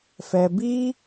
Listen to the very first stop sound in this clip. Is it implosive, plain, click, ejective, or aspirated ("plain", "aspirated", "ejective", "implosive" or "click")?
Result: plain